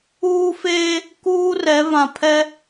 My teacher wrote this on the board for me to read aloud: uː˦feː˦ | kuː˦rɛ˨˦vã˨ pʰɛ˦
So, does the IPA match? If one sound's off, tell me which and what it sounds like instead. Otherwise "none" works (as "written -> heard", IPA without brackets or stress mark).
none